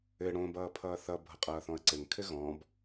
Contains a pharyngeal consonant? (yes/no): no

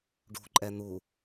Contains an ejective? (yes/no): yes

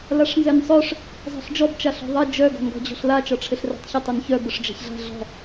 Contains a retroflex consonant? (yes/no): yes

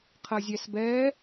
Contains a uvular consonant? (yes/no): yes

